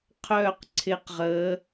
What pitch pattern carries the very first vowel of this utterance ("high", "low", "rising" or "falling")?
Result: falling